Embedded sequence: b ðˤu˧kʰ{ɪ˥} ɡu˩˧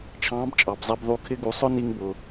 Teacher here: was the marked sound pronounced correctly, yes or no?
yes